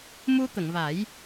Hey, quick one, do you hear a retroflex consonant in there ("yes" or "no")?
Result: no